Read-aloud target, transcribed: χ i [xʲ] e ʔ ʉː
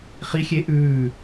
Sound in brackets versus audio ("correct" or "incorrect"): correct